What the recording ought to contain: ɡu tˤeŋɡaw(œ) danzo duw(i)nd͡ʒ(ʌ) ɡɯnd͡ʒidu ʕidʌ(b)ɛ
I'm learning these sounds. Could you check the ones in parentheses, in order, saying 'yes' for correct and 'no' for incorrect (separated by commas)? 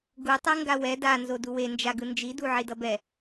no, no, no, yes